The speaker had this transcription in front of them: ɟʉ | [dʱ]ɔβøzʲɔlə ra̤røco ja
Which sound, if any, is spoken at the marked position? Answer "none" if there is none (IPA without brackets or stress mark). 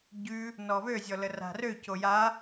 n